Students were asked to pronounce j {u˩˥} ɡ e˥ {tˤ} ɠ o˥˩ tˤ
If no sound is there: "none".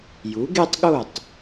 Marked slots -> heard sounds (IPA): u˩˥, tˤ

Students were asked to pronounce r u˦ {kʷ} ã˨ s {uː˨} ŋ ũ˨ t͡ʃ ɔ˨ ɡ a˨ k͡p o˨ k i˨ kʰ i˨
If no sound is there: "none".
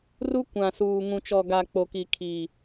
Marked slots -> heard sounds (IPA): kʷ, uː˨

